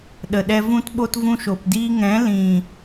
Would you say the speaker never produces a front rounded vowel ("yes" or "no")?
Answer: yes